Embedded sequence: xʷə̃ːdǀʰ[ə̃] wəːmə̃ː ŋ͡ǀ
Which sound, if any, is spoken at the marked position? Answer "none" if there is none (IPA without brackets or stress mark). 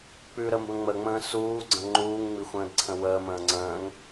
ə̃